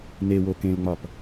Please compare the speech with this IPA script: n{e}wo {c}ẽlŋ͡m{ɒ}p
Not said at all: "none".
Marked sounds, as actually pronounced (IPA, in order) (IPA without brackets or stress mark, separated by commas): e, k, ɒ